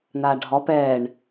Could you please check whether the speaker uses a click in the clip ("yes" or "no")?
no